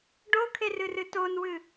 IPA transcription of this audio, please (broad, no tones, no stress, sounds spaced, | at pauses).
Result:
ɖ o kʰ e r ɨ r ɨ t o n w ɨ